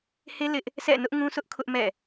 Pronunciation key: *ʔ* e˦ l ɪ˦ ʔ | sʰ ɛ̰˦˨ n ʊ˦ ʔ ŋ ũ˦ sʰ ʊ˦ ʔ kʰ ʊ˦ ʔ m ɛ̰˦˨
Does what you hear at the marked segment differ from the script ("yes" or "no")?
yes